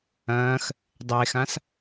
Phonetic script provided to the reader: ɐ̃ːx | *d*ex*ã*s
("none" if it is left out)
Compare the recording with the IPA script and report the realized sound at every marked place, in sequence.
dˤ, ã

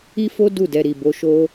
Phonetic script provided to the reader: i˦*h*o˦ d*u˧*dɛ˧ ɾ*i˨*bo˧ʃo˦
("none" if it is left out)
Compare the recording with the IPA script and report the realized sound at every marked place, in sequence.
f, u˦˨, i˨

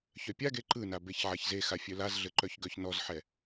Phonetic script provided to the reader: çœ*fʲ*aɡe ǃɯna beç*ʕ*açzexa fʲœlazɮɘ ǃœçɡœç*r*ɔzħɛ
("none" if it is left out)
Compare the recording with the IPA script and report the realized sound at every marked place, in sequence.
pʲ, ʕ, n

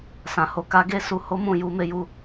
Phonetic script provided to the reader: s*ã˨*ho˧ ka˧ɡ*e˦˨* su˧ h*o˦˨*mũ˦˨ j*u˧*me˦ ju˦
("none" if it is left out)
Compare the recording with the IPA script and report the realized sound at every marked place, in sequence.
ã˨, e˦, o˦, u˧

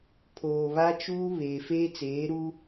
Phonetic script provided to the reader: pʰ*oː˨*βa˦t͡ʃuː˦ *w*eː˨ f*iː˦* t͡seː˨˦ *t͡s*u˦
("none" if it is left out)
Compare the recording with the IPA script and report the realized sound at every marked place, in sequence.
oː˨, β, eː˦, ɾ

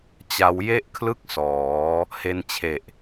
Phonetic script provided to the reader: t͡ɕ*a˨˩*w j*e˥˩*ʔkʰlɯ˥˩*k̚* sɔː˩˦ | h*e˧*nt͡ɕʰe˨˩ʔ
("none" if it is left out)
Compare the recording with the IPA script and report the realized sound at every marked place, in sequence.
a˦˥, e˥˩, k̚, e˧

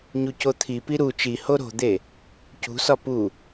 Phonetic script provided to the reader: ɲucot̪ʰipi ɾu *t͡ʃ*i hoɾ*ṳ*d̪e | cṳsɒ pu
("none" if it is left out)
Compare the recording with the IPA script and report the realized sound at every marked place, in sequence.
t͡ʃ, o̤

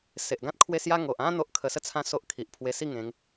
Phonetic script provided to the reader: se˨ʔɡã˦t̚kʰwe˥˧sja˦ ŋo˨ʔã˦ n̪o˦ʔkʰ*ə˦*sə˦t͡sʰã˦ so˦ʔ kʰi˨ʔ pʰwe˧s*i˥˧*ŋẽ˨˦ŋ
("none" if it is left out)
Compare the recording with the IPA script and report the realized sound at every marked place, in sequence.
ə˧, i˥˧

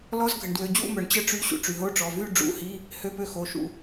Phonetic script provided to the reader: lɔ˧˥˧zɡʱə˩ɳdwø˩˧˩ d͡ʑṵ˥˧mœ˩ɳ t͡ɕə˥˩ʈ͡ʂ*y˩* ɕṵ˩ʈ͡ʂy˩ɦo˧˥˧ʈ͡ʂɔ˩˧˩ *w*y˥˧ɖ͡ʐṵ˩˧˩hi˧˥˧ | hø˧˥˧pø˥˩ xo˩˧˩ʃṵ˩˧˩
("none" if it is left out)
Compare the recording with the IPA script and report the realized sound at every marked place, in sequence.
y˧˥˧, v

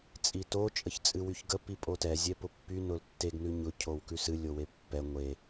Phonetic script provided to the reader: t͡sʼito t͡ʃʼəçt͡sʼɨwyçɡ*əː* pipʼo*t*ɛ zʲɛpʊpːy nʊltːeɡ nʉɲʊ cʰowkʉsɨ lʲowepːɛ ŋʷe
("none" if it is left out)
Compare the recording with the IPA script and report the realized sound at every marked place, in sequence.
ə, t

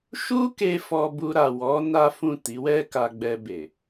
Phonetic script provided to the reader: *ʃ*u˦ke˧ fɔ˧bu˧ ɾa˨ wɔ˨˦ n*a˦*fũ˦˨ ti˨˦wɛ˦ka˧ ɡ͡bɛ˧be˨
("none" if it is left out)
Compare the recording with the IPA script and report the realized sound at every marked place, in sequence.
ʃ, a˦

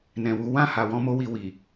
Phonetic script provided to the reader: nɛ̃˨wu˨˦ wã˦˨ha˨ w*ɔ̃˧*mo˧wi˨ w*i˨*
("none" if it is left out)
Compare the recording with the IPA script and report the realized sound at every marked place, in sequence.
ɔ̃˧, i˨

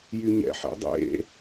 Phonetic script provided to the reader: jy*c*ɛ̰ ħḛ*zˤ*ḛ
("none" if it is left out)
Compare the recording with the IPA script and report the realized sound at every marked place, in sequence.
ɲ, dˤ

